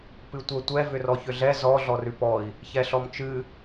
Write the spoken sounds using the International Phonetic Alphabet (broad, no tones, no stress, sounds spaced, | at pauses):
p ɨ tʷ ə tʷ ɛ v ʏ r ɔ ç ʏ ɮ ɛ z ɔ ɮ ɔ r ʉ p ɔ i̯ | ç ɛ ɬ ɔ m t͡ʃ ɨ